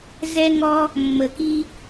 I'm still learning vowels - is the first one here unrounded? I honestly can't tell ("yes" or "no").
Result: yes